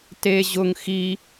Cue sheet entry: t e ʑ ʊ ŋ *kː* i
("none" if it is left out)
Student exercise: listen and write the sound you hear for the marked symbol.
x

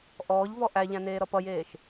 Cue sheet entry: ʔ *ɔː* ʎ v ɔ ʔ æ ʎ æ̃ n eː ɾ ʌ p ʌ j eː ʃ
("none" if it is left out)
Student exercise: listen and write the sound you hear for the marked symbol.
ɔː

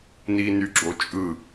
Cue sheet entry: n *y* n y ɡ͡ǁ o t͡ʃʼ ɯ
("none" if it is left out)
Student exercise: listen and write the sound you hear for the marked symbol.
i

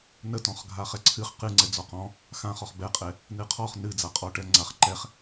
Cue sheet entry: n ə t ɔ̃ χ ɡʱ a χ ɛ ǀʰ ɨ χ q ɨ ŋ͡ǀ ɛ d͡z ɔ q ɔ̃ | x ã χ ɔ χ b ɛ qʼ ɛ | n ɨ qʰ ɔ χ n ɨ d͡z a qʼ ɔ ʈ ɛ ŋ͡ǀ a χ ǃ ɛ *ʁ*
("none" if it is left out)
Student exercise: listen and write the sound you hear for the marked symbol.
χ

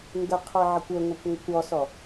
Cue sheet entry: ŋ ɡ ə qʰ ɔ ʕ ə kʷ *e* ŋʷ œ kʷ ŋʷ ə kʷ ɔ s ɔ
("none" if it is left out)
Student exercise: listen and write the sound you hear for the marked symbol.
ø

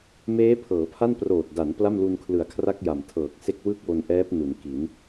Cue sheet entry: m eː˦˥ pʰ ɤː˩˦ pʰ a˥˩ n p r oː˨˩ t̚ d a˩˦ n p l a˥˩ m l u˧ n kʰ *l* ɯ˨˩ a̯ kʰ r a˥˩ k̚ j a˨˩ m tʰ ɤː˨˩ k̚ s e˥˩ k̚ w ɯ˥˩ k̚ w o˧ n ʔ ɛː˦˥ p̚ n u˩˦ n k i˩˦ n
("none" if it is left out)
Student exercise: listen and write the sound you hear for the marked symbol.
l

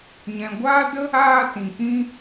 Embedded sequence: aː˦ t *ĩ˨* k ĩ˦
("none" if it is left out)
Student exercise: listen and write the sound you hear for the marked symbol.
ĩ˨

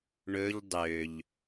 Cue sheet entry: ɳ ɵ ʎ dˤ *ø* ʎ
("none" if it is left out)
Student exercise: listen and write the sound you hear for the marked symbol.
ø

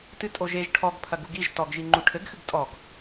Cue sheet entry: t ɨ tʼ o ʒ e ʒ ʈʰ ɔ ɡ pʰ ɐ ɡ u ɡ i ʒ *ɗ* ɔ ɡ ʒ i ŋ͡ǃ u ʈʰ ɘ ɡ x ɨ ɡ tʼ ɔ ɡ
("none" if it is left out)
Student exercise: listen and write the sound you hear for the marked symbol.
t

